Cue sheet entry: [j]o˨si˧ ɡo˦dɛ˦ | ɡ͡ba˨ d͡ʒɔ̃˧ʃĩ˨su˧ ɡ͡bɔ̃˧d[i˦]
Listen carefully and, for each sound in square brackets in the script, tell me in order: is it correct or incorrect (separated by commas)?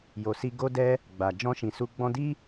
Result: correct, correct